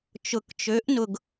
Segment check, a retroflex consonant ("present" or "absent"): absent